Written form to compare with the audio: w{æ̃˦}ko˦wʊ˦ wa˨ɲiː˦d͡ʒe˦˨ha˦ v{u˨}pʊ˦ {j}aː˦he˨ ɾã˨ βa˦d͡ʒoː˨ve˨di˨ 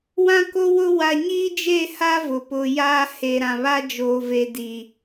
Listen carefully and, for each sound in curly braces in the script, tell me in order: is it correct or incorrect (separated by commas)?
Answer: incorrect, incorrect, correct